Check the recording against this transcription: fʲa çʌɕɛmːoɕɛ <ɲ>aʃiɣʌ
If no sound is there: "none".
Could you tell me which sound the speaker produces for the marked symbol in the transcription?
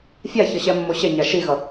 ɲ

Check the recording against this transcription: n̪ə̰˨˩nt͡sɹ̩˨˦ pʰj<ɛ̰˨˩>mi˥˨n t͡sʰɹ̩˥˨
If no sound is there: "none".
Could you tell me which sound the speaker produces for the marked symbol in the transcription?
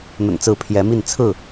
ɛ˨˦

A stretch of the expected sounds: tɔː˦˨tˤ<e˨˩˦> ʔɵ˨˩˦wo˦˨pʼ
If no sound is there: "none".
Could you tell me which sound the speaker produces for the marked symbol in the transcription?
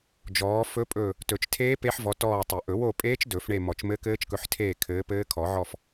ɘ˨˩˦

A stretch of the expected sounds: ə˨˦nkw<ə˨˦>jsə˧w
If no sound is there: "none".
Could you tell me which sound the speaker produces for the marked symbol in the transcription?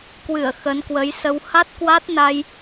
ə˨˦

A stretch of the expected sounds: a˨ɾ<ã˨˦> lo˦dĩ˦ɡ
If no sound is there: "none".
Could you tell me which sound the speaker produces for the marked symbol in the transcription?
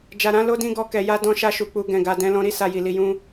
ã˧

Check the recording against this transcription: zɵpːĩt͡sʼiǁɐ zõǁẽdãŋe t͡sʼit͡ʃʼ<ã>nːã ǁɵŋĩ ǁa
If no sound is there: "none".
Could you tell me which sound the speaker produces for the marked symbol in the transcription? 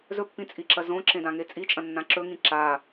ɐ̃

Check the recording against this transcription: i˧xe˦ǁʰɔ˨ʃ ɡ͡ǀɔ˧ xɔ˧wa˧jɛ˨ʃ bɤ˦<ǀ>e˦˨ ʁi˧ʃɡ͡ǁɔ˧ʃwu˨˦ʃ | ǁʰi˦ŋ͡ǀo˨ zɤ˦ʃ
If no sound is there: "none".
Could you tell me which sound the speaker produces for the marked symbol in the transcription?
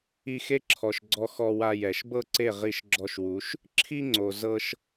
ǀ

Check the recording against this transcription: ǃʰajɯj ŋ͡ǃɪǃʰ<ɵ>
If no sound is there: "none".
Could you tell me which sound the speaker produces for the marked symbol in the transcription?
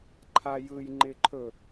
ɵ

